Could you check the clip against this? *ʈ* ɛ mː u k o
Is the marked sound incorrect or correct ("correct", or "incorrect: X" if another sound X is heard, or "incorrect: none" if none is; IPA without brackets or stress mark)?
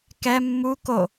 incorrect: k